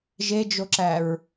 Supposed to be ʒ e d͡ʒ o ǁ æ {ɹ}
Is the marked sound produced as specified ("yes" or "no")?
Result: yes